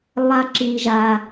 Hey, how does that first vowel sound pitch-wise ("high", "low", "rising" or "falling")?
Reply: high